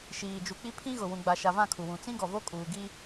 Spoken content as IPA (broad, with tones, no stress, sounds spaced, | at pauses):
ʃ iː˨ d͡ʒ u˨ k͡p i˦ pʰ ĩ˦ ɣ ʊ˨ w ũ˨ ɡ͡b a˨ ʃ a˨ v ã˦˨ kʰ u˨ w ũ˨ t͡s ĩ˦ ɡ ɔ˨ v o˦ kʼ uː˨ ɡ i˦